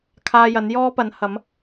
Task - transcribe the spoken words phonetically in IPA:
kʰaː˧jɐ˨˥n jɔː˥pɐ˨˥nhɐ˨˥m

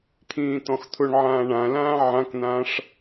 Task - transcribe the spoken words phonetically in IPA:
t̪ʰĩːt̪ɔ̃xt̪ʰʊɳʕãː ɳãlãː ʕãkn̪ãːʂ

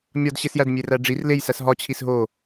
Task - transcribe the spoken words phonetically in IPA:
mʲɒdɕesjæd mʲeræɖ͡ʐir lej sæsɦɒ t͡ɕʰisɦo

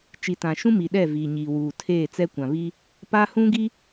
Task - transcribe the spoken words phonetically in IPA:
t͡ʃi˨tã˨ʃũ˦mi˨ ɗɛ˦˨viː˨ɲiː˨ wuː˨tʰeː˦˨t͡sɛ˦ kʷã˨βi˦ | pa˦ hũ˦ɡi˦

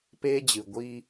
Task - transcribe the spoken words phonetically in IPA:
peː˦d͡ʑɨ˨ɡʷi˦

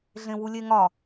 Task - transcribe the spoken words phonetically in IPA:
ɮẽwulʲeŋɒ

